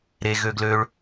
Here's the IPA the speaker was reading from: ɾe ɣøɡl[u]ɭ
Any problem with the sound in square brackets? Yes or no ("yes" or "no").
yes